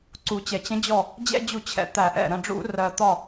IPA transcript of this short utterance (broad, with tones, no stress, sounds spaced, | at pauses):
ǀ u˩ t͡ɕ ɛ˩ t͡ɕ ə̃˨˦ d͡ʑ ɔ˧˩ | d͡ʑ ɛ̰˦ d͡ʑ u˧˩˧ t͡ɕʰ ɛ̰˨˦ t̪ æ˧˩˧ ʔ ɛ̰˧˩ ɾ ə̃˧˩ ɖ͡ʐ ṵ˧˩˧ r ɜ˩ t̪ ɒ˧˩